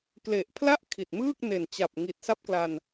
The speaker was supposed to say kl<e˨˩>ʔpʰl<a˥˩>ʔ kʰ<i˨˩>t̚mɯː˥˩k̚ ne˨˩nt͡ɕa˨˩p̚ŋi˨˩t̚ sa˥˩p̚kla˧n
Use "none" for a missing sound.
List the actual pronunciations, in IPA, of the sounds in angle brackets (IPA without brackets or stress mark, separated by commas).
e˨˩, a˥˩, i˨˩